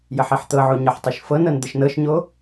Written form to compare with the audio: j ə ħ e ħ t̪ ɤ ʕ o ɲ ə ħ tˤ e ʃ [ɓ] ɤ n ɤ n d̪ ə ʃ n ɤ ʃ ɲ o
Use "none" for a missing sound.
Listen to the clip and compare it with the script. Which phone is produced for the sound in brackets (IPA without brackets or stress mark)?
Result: f